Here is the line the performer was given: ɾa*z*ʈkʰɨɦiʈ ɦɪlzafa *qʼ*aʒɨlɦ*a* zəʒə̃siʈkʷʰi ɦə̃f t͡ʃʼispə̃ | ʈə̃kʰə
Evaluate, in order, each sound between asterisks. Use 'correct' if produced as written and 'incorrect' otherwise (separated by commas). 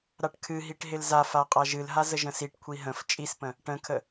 incorrect, correct, correct